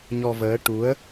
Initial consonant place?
palatal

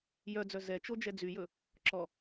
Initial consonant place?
palatal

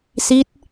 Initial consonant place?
alveolar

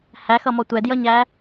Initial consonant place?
glottal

